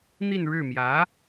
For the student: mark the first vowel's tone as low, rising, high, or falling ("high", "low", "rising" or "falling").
falling